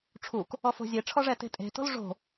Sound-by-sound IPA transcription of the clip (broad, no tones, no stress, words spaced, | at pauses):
ʈ͡ʂʰuk | ɔfo̤zʲeʈ͡ʂʰɔ ʐɛte̤tʼe̤to̤l ʐo̤